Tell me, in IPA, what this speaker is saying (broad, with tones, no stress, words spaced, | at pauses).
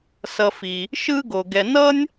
sʌ˨fi˩ | ʃɯ˦ɡo˩ɡɛ˨ nʌ˥nʲ